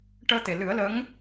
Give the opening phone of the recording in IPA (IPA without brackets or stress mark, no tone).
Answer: ʈ